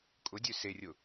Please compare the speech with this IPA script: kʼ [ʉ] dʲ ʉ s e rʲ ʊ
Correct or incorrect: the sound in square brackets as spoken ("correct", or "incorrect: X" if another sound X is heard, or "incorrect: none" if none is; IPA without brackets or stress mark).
incorrect: ʊ